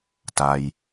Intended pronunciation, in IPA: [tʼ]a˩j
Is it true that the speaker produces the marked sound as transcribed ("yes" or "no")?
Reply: no